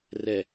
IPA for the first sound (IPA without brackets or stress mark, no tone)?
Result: r